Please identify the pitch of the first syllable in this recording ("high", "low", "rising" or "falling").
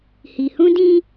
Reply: low